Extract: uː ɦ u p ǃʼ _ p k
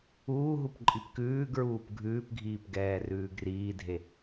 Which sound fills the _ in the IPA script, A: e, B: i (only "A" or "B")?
B